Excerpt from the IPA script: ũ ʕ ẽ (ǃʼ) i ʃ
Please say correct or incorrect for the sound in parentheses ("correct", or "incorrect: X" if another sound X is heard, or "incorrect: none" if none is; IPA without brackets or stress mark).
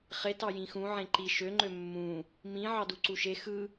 incorrect: ǃ